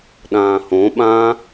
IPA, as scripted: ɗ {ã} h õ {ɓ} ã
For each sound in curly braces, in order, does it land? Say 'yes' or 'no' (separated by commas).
no, yes